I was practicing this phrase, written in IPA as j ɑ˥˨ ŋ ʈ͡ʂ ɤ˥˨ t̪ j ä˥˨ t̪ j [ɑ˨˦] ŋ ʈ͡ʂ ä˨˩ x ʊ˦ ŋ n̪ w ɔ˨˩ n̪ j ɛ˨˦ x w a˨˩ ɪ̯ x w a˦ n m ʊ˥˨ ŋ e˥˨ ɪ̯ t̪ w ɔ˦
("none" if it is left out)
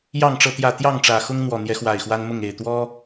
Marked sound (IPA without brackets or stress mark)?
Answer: ɑ˥˨